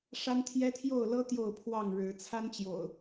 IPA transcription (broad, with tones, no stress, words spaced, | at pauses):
ʂa˦nt̪ʰjɛ˦t̪ʰjo˥˨ʊ̯lɤ˦ t̪jo˥˨ʊ̯pʰwɑ˥˨ŋɻɻ̩˨˦ t͡sʰa˦nt͡ɕjo̰˨˩ʊ̯